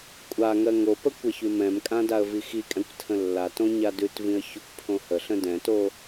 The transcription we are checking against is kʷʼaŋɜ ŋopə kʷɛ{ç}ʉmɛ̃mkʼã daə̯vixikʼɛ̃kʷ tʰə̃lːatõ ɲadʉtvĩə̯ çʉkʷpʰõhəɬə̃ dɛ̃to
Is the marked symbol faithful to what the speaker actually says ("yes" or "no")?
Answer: yes